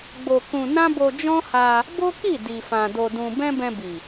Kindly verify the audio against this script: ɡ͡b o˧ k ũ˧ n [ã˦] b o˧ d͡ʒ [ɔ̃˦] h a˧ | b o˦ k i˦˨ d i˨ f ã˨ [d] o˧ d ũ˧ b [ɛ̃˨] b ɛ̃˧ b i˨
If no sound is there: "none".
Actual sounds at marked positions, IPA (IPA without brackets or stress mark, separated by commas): ã˦, ɔ̃˦, d, ɛ̃˦